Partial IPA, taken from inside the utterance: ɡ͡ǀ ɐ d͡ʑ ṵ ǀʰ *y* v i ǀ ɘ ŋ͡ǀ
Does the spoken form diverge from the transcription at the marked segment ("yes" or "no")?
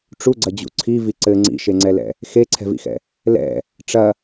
yes